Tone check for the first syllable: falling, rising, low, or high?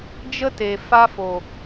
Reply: high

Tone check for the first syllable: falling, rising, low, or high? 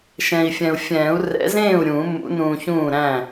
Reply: low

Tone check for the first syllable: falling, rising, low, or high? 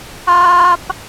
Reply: high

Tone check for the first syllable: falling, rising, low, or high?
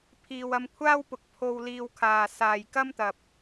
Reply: low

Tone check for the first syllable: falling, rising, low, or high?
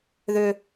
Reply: high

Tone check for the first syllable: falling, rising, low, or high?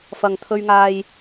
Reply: low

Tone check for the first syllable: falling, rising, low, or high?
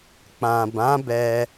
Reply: low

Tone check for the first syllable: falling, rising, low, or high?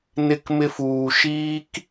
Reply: high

